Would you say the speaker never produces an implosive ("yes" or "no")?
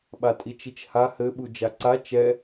no